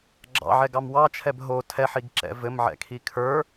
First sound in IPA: ɡ͡ǁ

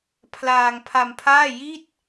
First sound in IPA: pʰ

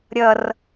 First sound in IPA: ɾʲ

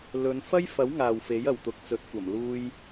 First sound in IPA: l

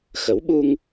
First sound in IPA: x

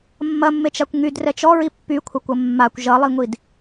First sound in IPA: mː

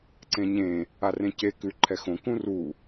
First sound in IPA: ǀ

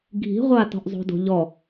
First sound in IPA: ɡʱ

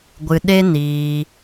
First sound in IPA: ɡʷ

